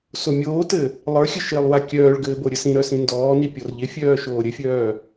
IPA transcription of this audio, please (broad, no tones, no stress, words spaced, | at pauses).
somʲoːtɘ | lˠə˞xʲɘ ʃɪːlˠwakʲœːɭɡɘː boɾʲɘsĩɾœ sĩndɔːni pʲɔrʎɪfʲœː ʃoːɾʲɘfʲœː